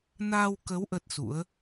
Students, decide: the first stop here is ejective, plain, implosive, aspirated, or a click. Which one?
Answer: plain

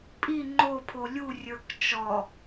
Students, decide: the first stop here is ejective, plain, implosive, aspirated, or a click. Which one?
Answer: ejective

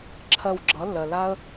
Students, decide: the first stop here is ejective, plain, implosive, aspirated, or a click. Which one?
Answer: click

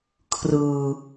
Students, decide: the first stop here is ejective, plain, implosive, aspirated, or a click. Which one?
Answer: aspirated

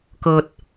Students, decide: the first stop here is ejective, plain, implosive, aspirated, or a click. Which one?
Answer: plain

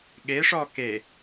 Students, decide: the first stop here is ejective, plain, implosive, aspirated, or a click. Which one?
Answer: implosive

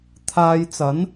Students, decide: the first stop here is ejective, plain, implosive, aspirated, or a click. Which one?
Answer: aspirated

